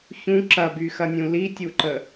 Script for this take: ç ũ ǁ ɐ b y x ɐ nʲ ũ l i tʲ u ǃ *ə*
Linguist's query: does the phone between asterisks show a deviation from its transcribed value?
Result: no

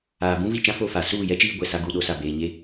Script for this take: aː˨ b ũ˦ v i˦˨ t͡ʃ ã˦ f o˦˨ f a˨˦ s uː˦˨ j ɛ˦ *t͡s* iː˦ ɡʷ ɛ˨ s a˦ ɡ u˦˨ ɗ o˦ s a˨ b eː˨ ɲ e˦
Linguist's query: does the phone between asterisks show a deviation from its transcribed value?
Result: yes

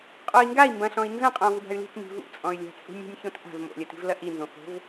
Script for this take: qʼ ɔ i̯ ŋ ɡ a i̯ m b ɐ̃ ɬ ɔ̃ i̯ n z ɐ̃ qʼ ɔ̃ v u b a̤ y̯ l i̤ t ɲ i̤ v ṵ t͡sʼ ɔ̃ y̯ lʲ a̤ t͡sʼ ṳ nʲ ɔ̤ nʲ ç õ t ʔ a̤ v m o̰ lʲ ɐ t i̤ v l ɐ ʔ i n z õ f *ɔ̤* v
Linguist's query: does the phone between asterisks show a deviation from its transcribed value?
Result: yes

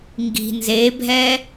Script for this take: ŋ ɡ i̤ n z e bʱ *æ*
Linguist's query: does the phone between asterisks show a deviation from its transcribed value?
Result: yes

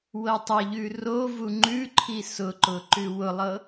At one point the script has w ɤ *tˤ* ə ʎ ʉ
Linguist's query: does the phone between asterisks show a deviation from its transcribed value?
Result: no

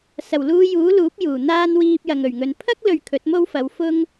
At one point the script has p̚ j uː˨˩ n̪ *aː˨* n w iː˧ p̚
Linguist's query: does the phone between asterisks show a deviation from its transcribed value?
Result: yes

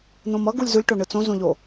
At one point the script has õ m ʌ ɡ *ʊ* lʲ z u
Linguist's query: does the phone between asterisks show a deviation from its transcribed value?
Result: yes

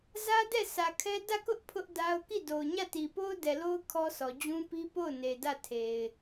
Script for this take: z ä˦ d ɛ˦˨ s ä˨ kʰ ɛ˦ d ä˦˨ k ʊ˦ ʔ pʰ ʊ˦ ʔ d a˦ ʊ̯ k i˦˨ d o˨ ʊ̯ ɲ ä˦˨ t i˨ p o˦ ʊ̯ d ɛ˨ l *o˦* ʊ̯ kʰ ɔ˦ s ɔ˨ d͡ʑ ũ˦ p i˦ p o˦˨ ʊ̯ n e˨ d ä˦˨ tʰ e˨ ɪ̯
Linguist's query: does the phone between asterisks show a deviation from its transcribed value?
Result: no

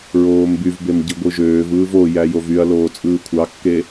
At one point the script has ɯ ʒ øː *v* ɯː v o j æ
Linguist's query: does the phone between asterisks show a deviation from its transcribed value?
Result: no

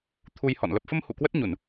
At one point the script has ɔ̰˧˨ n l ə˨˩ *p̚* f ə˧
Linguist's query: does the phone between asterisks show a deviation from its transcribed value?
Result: no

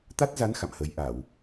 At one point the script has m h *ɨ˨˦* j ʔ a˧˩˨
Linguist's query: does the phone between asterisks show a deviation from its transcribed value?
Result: yes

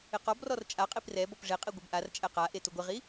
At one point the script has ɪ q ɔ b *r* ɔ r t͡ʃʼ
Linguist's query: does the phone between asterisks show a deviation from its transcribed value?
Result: no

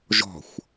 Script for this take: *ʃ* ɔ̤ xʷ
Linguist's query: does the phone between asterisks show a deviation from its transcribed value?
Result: yes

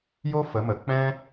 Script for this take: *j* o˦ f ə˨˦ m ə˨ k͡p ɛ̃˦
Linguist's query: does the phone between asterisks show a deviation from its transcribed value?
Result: no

